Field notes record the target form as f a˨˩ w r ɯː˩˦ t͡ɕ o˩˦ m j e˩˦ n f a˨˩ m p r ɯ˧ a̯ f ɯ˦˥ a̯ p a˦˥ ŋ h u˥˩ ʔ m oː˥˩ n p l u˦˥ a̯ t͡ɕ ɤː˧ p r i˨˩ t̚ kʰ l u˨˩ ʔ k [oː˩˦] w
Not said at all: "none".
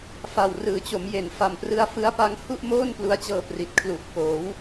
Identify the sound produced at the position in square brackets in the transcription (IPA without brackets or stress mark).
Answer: oː˩˦